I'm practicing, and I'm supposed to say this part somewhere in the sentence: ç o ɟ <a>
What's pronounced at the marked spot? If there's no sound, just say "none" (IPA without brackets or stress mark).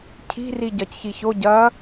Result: ɐ